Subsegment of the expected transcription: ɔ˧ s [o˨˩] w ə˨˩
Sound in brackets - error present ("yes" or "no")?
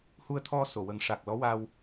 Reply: yes